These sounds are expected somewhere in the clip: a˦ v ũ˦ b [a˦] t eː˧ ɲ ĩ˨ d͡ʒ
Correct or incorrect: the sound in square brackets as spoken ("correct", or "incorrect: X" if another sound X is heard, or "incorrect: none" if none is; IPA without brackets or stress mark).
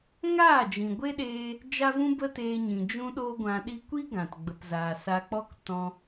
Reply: incorrect: ə˦